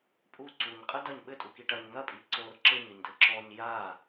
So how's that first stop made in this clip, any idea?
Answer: ejective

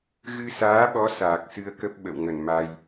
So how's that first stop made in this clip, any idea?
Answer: implosive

